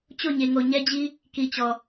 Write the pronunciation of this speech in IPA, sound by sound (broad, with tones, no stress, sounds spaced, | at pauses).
t͡ɕ o˦˨ ɲ e˨ ŋ o˨ ɲ ɛ˦ d͡ʑ i˦ | k i˨ t͡ɕ ɔ˨